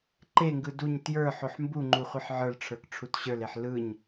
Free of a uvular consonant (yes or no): no